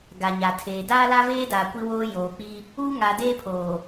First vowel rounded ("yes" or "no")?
no